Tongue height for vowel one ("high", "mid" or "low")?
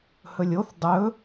mid